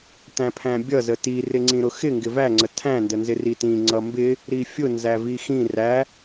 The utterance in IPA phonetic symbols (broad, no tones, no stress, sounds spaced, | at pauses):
t æ̃ pʰ æ̃ bʲ ʌ z ə t i r ɪ ŋ͡ǀ ĩ ɾ ʊ x ɪ ŋ ɡ ɪ v æ ŋ͡ǀ ə tʰ æ̃ n d ə n z ɪ r i t ĩ ŋ͡ǀ ʌ m b ɪ | ɾ i fʲ ʊ n z æ v i x ĩ r æ